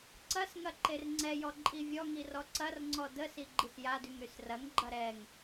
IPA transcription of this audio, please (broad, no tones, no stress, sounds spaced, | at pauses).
ǀ ɐ s ŋ ɐ ǃ e r ŋ͡ǀ ɛ j ɔ ǃʼ i vʲ ɔ ŋ i r ɔ ǀ ɐ r ŋ͡ǀ ɔ d ə s i ɡ͡ǃ i s j a d y ŋ ɾ y s r ɐ ŋ ɡ͡ǃ ɐ ɾ ɛ ŋ